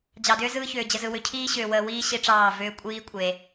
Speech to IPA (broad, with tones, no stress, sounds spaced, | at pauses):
d͡ʑ ɑ˨ d ʏː˦ z ɯː˦ ç ʏː˨ d͡ʑ ə˨ z ɯ˨ w ʏ˨ cʰ iː˦ ɕ ʏː˨ w əː˨ w iː˦ ɕ i˦ ʈ͡ʂ ɑː˦˨ v ʏː˦ kʷʼ iː˦ kʷʼ e˨